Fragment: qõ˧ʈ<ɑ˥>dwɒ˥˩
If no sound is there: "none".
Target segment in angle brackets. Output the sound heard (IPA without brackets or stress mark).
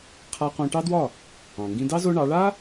ɑ˥